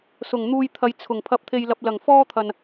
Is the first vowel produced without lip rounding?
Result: no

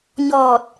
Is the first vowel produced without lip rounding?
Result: no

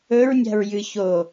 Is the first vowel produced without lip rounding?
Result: no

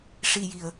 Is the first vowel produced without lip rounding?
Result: yes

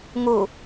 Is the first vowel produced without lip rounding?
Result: no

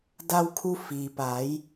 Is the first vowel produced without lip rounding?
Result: yes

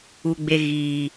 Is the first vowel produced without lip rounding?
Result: no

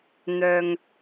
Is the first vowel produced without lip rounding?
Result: no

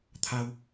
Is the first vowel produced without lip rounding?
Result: yes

